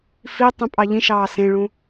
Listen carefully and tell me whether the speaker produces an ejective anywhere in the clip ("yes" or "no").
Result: yes